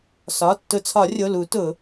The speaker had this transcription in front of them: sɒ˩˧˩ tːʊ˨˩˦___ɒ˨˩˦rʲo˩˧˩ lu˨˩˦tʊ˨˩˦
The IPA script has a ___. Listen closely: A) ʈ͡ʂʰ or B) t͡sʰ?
B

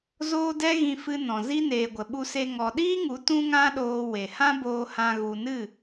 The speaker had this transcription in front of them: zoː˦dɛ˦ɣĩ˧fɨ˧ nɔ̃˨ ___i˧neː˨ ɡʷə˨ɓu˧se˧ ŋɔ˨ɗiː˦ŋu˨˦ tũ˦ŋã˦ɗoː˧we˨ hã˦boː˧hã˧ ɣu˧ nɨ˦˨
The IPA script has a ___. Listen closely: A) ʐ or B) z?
B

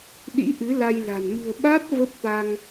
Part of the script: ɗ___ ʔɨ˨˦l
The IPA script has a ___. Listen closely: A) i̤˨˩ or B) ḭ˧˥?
B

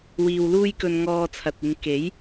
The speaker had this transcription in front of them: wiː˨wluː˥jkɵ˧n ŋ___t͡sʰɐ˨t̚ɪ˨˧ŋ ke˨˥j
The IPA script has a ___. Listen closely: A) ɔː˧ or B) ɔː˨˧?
A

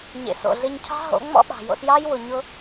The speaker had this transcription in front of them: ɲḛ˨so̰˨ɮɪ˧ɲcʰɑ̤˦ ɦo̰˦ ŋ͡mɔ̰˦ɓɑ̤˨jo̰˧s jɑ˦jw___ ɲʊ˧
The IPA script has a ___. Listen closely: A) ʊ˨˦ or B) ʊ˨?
B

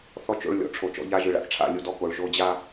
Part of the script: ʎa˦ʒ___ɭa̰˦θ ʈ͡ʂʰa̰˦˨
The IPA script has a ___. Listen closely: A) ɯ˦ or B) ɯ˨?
B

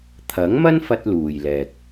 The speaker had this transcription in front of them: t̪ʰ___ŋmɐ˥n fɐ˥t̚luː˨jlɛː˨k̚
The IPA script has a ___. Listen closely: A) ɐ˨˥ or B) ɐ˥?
A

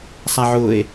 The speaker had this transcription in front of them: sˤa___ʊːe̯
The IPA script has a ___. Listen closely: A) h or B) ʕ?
B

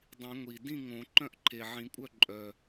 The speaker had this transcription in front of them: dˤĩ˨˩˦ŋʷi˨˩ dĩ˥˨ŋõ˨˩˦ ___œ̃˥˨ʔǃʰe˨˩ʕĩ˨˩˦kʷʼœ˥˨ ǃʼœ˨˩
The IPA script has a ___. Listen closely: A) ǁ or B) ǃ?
B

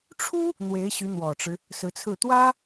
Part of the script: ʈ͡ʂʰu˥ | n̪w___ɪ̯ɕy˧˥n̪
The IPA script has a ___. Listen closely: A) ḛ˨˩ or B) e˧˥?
B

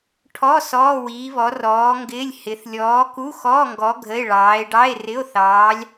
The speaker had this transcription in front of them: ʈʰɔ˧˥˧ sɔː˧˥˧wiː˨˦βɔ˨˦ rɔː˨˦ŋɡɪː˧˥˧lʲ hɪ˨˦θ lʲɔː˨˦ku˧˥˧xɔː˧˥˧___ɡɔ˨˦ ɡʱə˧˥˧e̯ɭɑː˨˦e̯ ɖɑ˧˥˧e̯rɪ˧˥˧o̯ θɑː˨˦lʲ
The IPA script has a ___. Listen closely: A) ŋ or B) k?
A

